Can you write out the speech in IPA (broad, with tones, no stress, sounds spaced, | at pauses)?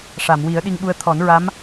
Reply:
ʂ a˨˩˨ m w i˨˩˦ ə̯ ɗ i˧ ŋ ɓ u˧ ə̯ t̪ʰ ɔ˨˩˦ n ɹ a˧˥ m